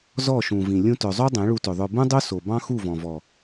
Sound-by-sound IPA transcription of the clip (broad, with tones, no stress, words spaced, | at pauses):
zɔ˦˨ʃũ˨vĩ˨ lʲũ˧tœ˨zˤo˦ dˤẽ˨˦ɭu˧tɵ˨ðˤœ˧ bũ˦dˤo˦so˨ bɑ̃˦xu˦˨vɔ̃˨vɔ˨